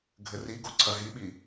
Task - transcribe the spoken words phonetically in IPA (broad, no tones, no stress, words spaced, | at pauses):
ɡʱɘriɡo ǀʰɐɦiɓi